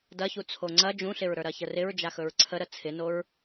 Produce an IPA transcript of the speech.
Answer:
d ɐ ç u t͡sʰ o ŋ͡ǀ ɐ d͡ʒ ũ ɬ ɪ ɹ ɾ ə˞ ɾ ɐ ç ə r ɪ ɹ d͡ʒ a x ɵ ɹ ǀʰ ə ɾ ə t͡sʰ ɪ n o ɹ

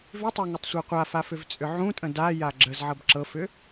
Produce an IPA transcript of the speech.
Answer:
v ʏ tˤ ə˞ ŋ ə tˤ sʷ ɤ qʷ a f a f ʏ v t͡sʼ ʏ ʕ ũ tʼ ə̃ d a j a ɡ͡ǁ ə z ʕ ɤ b ǁ ɤ f ʏ

